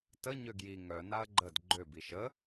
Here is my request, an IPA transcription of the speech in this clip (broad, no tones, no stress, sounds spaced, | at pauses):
t ə ɲ ø ɡ j i ŋ œ n a ɐ̯ ɡ͡ǃ ə d ɡ͡ǃ ø b i ʃ ə